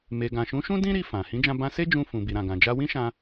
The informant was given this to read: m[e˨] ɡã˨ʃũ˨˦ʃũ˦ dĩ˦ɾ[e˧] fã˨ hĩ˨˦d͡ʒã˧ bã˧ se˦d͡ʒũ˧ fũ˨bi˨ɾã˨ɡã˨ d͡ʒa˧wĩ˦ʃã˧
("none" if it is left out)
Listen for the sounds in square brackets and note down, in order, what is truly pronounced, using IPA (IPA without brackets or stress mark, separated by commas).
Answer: e˨, i˧